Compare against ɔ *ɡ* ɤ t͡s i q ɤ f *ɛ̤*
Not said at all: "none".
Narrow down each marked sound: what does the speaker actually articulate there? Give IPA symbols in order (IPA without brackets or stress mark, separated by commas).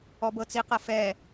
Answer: b, ɛ